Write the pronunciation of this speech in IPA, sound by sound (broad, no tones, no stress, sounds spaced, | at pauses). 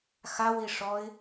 x a w i ʂ ɔ ɪ̯